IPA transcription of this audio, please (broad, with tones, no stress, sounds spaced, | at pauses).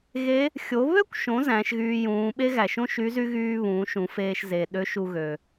ɣ e˧˥ | xʲ o˩˧ β ø˥ kʷ ʃ õ˩˧ z æ̃˩˧ ʃ ɣ yː˧ j ũː˩˧ ɓ e˥ ɣ æ˩ ʃ õ˥ ʃ y˧˥ z y˥ ɣ yː˥ β ũː˩˧ ʃ ũ˩˧ f eː˧ ʃ z eː˩ ɗ ø˧˥ ʃ u˧ ɣ ø˩